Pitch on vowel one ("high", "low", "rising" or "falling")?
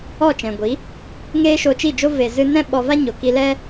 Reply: falling